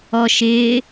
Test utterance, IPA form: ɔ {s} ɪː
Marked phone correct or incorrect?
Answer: incorrect